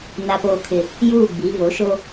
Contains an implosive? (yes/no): no